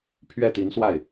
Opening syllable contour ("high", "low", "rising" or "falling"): falling